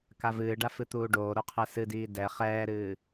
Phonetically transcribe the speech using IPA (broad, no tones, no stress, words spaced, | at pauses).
kavɨːɖa fɨt̪uːɖoːɾo qʰɛsɨdiː dɛ χɛːɾɨː